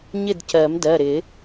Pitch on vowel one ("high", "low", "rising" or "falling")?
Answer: falling